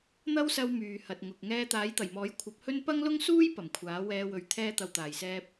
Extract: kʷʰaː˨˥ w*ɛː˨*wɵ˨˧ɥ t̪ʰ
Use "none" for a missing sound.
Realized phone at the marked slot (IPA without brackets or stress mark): ɛː˧